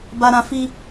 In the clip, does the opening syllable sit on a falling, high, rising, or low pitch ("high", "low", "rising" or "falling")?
high